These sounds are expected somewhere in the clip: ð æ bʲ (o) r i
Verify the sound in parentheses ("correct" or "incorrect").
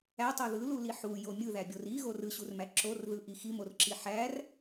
correct